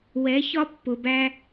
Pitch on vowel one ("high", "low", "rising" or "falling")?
rising